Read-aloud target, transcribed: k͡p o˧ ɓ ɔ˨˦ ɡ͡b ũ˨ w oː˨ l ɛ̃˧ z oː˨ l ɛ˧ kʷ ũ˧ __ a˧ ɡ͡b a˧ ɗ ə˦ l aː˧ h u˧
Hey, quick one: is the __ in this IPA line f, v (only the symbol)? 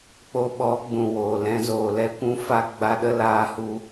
f